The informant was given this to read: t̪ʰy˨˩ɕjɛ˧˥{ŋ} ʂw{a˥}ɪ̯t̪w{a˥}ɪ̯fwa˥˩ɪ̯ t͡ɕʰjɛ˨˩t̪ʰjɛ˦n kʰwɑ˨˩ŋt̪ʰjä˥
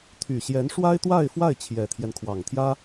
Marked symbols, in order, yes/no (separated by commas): no, yes, no